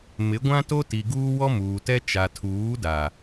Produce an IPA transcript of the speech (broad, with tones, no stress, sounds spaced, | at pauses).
m ɪ˨˦ ɡʷ ã˦ t o˦ t i˨ ɡ uː˦ w ɔ˦ m uː˨ t ɛ˦ t͡ʃ a˨ tʰ uː˨˦ d a˨